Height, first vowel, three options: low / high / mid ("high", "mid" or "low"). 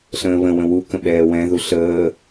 mid